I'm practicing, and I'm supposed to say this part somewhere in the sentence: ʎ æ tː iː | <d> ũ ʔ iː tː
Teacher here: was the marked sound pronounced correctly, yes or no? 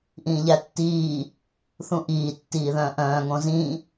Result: no